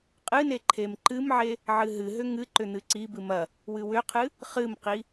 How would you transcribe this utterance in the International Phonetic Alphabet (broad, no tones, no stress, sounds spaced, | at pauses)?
qʼ ɨ n e ǃʰ e m ǃ ɨ m ʕ e | ʕ ɨ ɦ ɨ ɦ ʏ ŋ ɨ ǃ ʏ n̪ ɨ ǀ i b ɨ m ɐ | w ɨ w ʏ qʰ ɨ | χ ɨ m q i